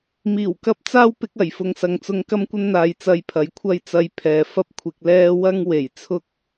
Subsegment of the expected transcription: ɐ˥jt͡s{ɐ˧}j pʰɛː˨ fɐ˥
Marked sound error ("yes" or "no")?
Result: no